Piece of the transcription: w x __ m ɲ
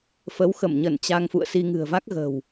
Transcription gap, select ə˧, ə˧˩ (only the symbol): ə˧˩